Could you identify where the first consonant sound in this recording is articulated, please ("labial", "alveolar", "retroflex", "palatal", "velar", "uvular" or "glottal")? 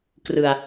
velar